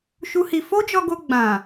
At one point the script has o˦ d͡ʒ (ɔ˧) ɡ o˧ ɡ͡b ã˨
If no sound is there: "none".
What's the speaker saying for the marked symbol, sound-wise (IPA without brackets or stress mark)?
ɔ˧